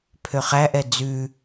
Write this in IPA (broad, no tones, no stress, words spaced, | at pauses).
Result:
pʰøχæʔɛ d͡zʉ